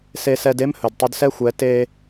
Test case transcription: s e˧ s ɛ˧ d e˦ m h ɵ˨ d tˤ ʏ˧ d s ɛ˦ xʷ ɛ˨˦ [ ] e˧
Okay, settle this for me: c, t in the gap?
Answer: t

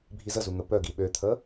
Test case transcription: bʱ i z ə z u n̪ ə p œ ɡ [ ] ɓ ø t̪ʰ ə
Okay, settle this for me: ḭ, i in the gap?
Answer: i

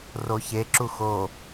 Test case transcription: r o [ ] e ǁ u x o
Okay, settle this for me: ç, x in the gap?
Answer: ç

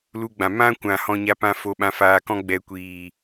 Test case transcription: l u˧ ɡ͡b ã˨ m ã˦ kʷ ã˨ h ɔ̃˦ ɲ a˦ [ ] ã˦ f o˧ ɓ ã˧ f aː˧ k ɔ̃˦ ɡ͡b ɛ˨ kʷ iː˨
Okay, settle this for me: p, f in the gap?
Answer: p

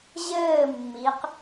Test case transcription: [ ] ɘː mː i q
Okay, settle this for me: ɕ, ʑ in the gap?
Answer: ʑ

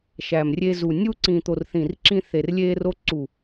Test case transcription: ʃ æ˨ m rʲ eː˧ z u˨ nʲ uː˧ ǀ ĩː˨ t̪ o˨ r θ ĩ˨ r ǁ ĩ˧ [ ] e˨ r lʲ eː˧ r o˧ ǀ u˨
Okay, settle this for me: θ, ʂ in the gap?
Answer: θ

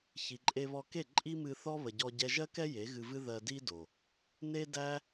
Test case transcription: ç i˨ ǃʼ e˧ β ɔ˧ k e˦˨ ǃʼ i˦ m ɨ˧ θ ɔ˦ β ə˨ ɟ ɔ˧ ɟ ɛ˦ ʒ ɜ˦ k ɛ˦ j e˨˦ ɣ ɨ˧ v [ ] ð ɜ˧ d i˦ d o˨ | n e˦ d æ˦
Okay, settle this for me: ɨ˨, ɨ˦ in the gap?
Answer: ɨ˦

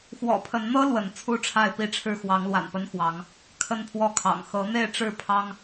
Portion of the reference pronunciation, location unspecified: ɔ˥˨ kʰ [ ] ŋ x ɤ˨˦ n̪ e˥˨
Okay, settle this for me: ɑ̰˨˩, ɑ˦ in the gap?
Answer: ɑ̰˨˩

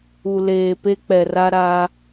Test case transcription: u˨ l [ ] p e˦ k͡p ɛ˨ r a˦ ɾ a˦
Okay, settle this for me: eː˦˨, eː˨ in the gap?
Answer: eː˨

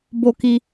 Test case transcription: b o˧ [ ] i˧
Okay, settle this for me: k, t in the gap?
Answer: k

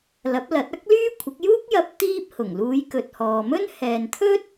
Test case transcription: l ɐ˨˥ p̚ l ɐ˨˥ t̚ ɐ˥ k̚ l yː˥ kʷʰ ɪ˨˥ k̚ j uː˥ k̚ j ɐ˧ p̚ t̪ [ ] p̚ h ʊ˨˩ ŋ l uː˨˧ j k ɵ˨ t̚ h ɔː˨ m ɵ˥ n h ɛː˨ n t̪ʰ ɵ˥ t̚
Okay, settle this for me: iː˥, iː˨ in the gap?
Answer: iː˥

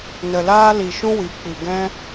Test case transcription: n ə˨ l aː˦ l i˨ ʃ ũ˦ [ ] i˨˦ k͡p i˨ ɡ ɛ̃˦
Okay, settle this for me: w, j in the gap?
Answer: w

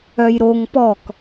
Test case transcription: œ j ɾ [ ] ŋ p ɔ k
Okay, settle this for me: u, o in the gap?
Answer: o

